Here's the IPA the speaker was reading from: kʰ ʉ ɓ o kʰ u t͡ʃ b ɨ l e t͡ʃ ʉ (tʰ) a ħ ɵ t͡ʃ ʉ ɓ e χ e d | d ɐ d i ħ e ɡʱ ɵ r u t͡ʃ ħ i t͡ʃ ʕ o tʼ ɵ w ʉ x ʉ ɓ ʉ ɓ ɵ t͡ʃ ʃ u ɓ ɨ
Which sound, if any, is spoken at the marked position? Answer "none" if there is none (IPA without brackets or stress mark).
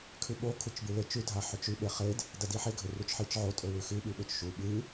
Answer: dʱ